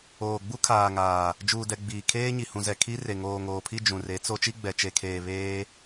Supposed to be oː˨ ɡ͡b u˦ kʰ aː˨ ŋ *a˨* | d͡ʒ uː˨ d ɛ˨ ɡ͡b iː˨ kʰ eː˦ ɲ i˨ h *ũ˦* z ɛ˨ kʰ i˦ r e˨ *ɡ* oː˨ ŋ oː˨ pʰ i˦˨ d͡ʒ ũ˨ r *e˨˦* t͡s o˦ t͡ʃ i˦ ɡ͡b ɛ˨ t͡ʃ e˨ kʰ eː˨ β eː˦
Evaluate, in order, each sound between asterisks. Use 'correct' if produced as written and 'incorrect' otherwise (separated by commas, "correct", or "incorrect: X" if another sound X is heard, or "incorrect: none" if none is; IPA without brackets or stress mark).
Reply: incorrect: aː˨, incorrect: ũ˨, incorrect: ŋ, correct